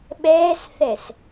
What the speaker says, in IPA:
ɓɛːsθɛs

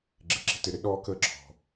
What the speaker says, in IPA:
ɡ͡ǁɪ˨˩ǁi̤˥tɪ˨˩ɾɪ˥ ɗɔː˥kəː˥ǁʰɔ̤˨˩

